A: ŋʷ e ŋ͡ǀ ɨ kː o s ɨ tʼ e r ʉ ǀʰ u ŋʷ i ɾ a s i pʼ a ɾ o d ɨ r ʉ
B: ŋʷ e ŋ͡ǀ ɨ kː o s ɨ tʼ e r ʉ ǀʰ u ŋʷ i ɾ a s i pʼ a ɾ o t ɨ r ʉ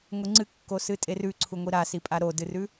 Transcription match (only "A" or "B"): A